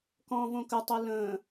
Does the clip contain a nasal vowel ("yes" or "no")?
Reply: yes